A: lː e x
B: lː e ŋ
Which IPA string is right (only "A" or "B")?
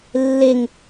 B